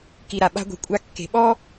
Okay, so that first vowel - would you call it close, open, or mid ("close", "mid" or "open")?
close